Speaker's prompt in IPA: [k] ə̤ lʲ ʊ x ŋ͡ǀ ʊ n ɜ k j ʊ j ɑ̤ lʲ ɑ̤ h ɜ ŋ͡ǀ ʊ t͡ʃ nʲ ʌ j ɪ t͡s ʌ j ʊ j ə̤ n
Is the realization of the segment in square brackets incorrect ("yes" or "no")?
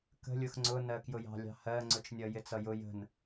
no